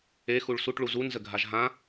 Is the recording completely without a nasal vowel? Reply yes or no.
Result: no